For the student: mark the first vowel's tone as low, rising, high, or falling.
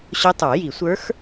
rising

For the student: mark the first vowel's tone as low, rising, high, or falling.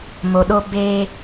low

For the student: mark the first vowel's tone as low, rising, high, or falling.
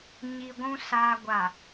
low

